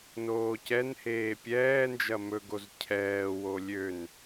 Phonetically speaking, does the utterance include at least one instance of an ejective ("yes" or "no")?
no